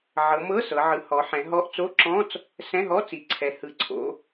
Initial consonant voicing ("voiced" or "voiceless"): voiced